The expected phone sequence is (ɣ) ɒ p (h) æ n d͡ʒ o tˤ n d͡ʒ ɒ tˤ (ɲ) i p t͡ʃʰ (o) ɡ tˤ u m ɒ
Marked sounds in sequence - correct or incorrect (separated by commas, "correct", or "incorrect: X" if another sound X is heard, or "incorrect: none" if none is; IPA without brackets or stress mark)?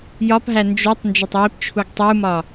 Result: incorrect: j, incorrect: ɦ, incorrect: j, incorrect: u